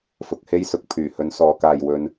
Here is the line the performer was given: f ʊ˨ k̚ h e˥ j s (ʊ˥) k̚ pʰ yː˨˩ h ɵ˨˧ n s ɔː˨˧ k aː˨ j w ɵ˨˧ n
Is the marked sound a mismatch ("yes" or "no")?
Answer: yes